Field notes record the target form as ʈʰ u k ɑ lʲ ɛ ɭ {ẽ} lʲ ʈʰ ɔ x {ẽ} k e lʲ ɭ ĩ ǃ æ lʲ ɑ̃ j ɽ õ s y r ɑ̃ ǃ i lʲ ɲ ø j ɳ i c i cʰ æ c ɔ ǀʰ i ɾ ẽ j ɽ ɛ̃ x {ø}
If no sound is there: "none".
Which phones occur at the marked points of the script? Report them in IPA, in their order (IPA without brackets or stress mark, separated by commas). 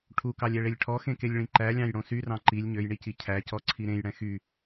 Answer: e, ẽ, y